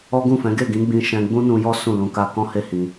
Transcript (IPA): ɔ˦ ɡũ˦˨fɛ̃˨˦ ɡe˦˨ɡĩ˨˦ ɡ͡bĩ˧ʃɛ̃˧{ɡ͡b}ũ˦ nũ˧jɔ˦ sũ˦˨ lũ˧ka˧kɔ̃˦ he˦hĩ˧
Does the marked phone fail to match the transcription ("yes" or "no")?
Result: no